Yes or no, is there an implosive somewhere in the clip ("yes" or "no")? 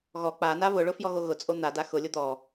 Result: no